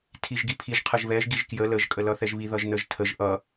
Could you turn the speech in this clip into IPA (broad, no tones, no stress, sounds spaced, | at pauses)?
tʰ i ʒ ɡ i pʰ i ʒ qʰ ə ʒ β ɛ ʒ ɡ i ʒ k j ə l ə ʒ kʼ ə l ʌ θ ɛ ʒ β i ð ʌ ʒ n ə ʒ tʰ ə ʒ ʔ ʌ